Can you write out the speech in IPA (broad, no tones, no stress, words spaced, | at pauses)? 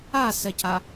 asɛca